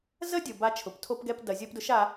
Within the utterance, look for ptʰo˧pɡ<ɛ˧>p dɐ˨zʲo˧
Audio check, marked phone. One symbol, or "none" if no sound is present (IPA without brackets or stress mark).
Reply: ɛ˧